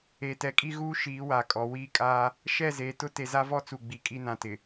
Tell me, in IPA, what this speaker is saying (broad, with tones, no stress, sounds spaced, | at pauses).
e˨ t ɛ˨ kʼ i˦ ɣ uː˦ ʃ iː˨˦ w a˨ kʼ ɔ˨ w iː˦ kʼ aː˦ | ʃ ɛ˦˨ z eː˨ t ʊ˦ t e˨ z a˦ v ɔ˦ t͡s u˨ ɡ͡b i˨ kʼ i˦ n ã˨˦ t ɪ˨